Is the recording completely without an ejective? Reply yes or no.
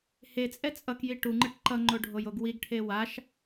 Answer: no